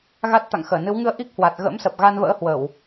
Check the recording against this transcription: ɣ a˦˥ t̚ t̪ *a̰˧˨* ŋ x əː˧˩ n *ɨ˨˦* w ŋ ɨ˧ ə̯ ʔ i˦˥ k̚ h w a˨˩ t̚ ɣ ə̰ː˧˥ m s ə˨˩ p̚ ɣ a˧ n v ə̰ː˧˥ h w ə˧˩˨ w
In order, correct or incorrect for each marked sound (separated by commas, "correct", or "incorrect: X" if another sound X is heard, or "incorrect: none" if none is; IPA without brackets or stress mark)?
correct, correct